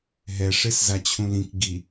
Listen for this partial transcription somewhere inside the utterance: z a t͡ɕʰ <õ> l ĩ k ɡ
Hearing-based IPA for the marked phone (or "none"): ũ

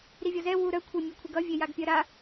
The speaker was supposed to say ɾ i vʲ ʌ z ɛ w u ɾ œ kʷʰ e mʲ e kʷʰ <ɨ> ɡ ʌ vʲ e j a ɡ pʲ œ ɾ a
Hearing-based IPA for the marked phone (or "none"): i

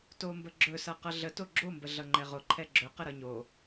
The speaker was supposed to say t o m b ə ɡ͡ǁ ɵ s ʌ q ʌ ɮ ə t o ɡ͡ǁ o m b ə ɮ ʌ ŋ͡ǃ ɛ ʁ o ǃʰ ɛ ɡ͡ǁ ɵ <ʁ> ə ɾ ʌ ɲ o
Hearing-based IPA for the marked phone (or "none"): q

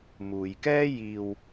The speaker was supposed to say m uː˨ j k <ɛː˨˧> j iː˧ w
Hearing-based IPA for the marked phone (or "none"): ɛː˥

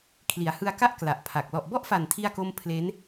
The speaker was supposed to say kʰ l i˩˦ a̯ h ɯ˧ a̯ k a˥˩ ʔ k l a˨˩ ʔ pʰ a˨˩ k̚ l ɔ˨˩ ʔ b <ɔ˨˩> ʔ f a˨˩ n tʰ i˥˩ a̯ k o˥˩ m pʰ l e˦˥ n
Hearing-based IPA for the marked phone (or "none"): ɔ˥˩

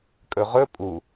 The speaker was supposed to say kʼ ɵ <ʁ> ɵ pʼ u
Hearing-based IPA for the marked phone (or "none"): ʁ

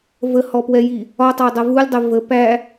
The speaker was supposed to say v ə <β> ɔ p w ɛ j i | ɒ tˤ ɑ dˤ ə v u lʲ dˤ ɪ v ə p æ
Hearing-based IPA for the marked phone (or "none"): h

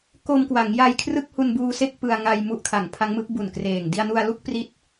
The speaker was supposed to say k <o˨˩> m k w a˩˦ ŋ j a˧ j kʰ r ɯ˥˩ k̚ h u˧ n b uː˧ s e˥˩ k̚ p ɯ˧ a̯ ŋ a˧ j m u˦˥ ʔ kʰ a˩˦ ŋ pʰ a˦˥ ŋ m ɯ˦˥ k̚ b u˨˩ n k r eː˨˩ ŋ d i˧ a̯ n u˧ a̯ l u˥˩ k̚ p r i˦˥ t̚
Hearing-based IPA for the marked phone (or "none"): o˧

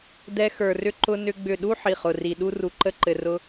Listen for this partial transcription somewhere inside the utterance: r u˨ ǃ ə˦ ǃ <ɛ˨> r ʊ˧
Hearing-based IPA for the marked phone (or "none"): ɘ˨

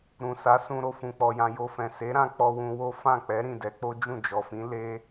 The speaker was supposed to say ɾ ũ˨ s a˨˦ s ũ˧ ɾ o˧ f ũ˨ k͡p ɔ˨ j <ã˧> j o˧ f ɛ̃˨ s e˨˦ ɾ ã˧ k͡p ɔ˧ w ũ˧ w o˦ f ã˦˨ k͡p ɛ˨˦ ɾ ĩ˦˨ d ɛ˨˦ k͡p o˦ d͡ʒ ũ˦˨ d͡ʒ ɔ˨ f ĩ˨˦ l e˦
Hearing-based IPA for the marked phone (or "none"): ã˧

